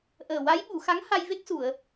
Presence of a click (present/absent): absent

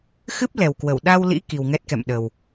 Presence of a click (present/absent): absent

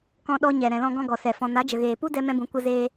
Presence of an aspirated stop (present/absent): absent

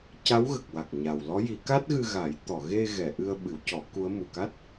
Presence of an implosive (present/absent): present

